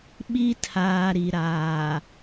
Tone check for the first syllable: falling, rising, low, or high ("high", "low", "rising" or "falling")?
high